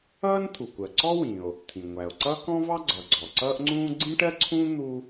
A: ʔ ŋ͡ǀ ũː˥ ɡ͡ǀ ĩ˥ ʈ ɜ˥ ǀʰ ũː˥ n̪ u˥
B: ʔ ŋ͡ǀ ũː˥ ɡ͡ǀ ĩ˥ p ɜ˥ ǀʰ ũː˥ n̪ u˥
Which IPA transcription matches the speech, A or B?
A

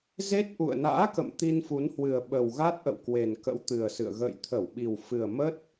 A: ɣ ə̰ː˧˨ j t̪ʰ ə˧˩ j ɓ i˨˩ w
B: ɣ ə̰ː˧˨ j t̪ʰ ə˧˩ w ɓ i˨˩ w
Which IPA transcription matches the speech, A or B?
B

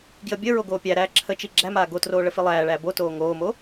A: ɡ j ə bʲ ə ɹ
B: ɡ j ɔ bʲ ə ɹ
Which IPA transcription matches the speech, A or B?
A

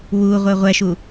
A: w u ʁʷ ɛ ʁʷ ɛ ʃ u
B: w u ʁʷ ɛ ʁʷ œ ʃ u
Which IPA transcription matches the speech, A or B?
A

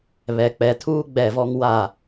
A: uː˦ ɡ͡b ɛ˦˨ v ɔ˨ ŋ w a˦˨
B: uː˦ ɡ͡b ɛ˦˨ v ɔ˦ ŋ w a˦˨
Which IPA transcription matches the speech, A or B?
B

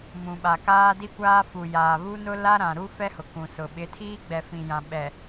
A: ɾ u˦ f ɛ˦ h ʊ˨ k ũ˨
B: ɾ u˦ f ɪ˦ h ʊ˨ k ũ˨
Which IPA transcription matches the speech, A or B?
A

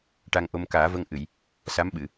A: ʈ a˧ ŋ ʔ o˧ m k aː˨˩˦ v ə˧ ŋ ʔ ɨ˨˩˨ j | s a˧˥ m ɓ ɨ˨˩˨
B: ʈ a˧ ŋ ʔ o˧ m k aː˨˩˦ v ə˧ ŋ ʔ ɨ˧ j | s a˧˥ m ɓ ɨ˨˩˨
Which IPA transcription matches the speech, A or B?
A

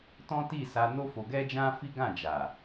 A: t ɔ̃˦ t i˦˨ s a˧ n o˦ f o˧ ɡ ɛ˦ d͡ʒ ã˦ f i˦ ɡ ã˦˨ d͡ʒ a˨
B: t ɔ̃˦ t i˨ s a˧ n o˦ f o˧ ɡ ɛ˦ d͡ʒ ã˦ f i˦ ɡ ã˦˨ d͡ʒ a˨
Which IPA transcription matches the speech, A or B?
A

